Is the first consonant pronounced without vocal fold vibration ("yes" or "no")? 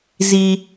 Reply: no